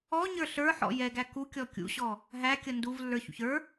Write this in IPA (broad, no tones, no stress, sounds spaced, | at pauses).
ɔ ɲ ə˞ ɬ ə˞ ħ ɔ̰ j ɛ ɡ æ k u kʲ ɔ kʲ ṵ ɕ ɔ | ɦ æ kʲ ʌ n d u v lː ə˞ ç ṵ ç ə˞